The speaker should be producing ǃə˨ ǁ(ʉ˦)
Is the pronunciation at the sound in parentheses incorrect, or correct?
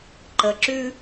correct